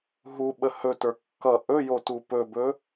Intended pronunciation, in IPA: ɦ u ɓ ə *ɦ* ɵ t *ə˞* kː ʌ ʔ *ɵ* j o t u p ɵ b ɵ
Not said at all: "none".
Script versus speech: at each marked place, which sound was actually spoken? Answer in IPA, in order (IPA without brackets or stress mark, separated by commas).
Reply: h, ə˞, ɵ